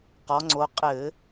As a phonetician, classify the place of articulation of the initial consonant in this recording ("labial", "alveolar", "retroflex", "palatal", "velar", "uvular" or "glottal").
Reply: uvular